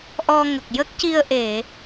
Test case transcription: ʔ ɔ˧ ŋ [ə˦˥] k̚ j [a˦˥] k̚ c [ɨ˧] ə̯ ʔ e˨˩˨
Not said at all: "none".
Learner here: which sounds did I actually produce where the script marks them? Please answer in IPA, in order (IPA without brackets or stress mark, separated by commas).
ə˨˩, ə˦˥, i˧